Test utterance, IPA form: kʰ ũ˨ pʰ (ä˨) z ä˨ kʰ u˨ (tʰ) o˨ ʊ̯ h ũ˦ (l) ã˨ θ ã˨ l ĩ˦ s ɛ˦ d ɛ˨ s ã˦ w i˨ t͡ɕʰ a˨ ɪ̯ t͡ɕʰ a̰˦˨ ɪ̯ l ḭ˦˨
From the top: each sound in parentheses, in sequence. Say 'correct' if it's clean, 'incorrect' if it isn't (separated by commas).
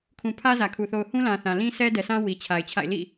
incorrect, incorrect, correct